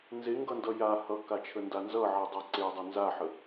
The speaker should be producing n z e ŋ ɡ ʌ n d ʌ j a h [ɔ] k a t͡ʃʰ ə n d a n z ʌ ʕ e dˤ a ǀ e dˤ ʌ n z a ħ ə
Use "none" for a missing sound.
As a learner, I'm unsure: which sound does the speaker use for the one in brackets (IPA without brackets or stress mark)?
ʌ